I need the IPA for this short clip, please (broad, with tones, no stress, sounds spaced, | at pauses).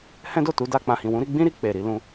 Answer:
h ɛ̃˦ d o˦˨ t u˨˦ d a˧ k͡p ã˨ h ĩ˨ w ũ˨˦ ɾ i˧ ɡ͡b ĩ˦ ɾ i˧ k͡p e˨ ɾ i˨˦ l ũ˧